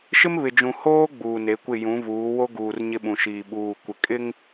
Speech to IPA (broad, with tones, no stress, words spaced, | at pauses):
ʃɪ˦m βɪ˨d͡ʒũ˨ hoː˦ ɡ͡buː˨ne˨˦kʷɪ˦˨ jũ˨˦vuː˨˦ wo˦ɡuː˨r ɲɪ˦ɓũ˨ʃiː˨ ɓuː˨ kʷɪ˨ kʼɪ˦ŋ